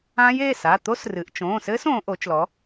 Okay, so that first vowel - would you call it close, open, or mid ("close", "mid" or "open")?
open